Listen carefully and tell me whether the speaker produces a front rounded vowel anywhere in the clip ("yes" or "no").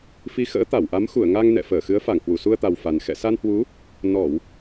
no